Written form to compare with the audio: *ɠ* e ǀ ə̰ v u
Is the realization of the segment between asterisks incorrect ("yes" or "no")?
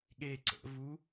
no